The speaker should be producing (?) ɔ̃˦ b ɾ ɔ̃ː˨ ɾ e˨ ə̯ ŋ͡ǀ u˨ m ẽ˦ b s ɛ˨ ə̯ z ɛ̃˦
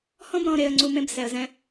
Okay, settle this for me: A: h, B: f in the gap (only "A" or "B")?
A